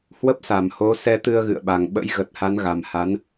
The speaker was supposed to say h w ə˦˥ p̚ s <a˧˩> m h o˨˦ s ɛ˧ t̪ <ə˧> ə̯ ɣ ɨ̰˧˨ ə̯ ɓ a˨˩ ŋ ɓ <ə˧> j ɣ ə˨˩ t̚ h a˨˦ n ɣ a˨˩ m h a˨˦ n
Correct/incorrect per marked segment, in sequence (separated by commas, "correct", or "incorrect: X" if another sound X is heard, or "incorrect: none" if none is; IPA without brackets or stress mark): correct, incorrect: ɨ˧, incorrect: ə̰˧˥